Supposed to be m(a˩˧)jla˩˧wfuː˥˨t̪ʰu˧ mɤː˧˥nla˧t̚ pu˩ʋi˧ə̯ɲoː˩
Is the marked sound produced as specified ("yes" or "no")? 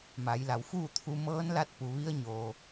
yes